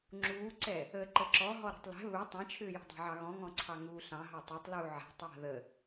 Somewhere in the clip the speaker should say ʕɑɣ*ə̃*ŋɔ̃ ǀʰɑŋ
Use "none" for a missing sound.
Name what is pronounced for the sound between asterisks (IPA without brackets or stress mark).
ɔ̃